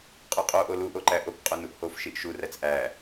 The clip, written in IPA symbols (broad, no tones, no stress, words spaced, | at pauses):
qʼuqʼo ʔolu ʔoǃæʔok qʼonuʔhof ʃiʔʃu ræt͡sʔæ